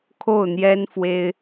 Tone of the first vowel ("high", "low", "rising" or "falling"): falling